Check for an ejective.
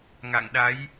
absent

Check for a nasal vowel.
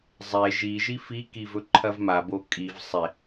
absent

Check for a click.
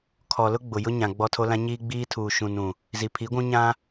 absent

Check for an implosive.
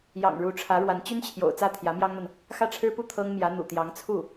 absent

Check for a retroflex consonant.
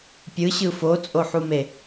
absent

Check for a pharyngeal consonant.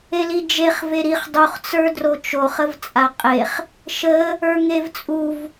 absent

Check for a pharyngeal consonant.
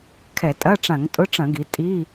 absent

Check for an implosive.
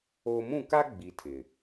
absent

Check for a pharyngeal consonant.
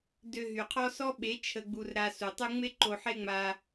present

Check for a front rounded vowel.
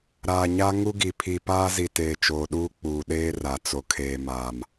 absent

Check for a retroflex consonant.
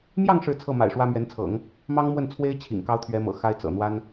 present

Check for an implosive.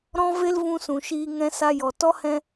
absent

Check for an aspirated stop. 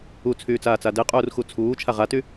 present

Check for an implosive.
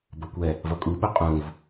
present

